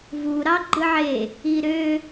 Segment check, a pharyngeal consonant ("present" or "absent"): present